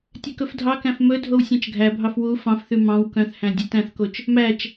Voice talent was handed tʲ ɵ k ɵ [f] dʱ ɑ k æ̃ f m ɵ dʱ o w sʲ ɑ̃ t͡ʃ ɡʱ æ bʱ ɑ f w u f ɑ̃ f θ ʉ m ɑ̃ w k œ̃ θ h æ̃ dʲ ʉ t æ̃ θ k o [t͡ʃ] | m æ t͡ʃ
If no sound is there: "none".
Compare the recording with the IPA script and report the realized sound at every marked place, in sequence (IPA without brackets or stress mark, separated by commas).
f, t͡ʃ